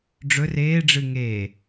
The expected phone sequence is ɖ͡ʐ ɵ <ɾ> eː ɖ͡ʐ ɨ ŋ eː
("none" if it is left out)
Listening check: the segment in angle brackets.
r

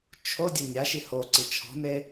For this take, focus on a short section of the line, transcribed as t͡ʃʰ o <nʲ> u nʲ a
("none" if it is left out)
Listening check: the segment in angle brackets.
dʲ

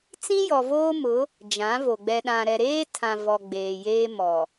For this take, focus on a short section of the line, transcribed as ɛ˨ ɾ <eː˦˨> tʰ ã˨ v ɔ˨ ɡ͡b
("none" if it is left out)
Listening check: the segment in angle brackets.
eː˦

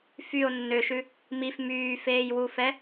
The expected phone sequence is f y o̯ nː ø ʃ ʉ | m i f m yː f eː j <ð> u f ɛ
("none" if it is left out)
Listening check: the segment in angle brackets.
w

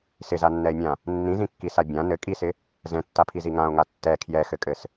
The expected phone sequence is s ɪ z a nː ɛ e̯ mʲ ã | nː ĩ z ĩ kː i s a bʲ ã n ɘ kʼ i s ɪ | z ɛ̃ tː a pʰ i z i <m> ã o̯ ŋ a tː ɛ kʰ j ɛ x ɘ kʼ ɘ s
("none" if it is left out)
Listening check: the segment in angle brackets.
ŋ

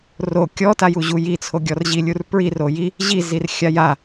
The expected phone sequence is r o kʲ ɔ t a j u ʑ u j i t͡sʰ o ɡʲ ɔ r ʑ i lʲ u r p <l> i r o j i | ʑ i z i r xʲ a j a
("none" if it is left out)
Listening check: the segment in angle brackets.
ɹ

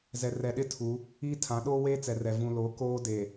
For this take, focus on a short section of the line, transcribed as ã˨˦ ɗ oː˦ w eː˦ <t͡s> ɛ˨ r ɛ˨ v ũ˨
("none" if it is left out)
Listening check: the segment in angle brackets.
t͡s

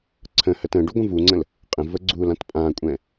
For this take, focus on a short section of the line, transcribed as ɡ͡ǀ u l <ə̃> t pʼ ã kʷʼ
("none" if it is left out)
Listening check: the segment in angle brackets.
ã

